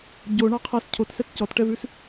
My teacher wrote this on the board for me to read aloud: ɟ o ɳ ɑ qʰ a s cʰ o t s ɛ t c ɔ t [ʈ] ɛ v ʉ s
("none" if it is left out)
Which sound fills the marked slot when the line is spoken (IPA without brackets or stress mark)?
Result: ʈ